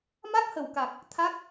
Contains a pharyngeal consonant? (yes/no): no